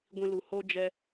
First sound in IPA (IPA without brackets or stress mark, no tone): ɡʷ